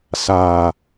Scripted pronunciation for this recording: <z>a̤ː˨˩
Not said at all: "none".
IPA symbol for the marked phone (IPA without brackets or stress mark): s